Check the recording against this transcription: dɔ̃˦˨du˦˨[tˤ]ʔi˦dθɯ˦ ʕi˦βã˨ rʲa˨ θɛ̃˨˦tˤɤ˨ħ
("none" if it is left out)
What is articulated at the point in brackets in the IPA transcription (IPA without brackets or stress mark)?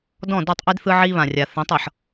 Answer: tˤ